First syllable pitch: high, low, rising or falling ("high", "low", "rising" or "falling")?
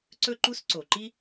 high